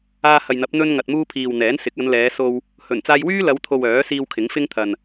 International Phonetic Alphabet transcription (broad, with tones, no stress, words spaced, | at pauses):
aː˧hɐ˨jn̪ɐ˨˥p̚ n̪ɵ˧nŋɐ˨t̚muː˧ pʰiː˨wn̪ɛː˨˥nsɪ˨˥k̚ ɐ˨˧nlɛː˨˧so˧w | hɵ˨˩nt͡saː˧jwyː˥ lɐ˨˧wt̪ʰo˨w œː˨˥siː˧w kʰɪ˨˥ŋfɪ˥ŋt̪ʰɐ˨n